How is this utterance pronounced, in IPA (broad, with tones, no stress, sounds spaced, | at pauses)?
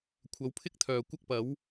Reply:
kʷʰ ɐ˨˧ w pʰ ɪ˥ k̚ t̪ʰ œː˨ kʷ ɐ˥ k̚ p ɐ˨˥ w